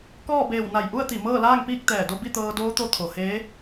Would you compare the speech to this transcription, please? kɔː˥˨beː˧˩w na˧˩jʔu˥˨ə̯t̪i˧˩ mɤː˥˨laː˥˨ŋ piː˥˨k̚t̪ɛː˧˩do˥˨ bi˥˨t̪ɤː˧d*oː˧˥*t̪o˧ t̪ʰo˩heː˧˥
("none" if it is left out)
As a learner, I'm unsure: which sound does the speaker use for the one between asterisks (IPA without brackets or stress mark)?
oː˧˥